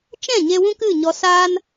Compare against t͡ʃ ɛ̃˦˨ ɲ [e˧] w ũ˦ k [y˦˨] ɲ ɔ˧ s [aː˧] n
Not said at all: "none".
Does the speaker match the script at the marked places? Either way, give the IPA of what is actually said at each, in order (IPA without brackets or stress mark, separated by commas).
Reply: e˧, ɨ˦˨, aː˦